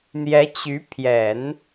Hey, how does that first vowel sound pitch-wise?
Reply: rising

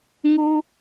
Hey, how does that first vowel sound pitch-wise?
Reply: high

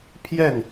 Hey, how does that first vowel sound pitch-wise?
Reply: falling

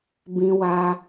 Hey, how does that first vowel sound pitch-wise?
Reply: high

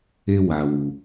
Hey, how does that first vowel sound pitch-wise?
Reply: high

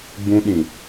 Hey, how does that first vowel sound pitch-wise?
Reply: high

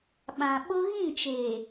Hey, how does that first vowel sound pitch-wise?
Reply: low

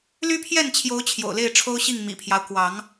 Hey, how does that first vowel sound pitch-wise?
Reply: high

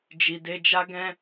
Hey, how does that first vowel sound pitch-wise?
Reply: low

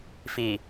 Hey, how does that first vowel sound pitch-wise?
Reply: low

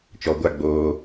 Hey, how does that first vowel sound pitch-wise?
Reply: low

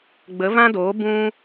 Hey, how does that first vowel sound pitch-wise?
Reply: rising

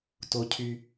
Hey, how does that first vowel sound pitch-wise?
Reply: high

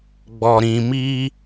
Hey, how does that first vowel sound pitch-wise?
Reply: low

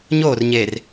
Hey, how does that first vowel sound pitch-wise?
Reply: falling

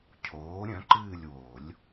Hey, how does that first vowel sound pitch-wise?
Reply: rising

